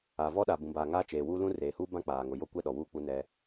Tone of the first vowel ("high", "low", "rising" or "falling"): low